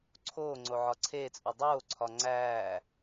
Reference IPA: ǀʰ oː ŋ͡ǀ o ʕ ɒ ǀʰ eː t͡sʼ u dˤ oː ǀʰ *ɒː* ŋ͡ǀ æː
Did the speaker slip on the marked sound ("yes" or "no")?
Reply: yes